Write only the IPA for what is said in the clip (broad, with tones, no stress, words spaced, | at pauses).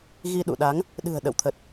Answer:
ɣi˧ɗṵ˧˨ɗa˨˦ŋ | ɗɨ̤˨˩ə̯ɗə̰˧˨wt̪ʰə˨˩t̚